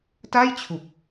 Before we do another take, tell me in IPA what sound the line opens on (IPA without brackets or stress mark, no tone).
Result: t